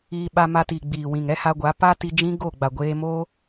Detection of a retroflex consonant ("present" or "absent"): absent